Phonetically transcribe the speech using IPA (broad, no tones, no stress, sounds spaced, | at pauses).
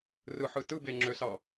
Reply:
r ɯ ħ ɯ t ɯ b e ŋ͡ǁ ø s ɑ